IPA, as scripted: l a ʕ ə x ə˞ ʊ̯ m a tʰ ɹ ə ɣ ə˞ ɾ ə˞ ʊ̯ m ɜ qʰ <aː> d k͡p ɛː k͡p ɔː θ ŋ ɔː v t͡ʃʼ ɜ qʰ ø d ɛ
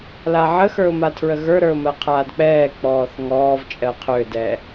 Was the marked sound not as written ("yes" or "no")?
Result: no